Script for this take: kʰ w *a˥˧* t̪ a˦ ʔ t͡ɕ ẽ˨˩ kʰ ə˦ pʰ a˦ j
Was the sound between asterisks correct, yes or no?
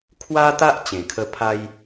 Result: no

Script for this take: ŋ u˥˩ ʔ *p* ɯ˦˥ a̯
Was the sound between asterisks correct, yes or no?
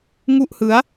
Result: no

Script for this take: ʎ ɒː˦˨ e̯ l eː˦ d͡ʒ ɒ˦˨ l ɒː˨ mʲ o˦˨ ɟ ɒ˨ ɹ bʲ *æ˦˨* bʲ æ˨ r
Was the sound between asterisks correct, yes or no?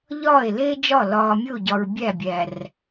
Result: yes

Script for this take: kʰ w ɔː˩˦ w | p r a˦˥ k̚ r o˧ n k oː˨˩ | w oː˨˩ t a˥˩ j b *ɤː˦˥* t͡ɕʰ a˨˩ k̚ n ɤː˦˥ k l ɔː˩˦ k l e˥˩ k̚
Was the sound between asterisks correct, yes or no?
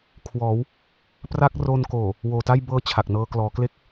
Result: yes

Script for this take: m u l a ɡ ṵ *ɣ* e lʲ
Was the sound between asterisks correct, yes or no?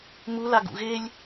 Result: yes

